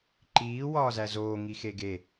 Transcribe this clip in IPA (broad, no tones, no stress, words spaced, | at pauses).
ǃiː wɒːzæzoː ŋixeɡe